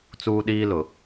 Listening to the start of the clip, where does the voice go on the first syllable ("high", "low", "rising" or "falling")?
high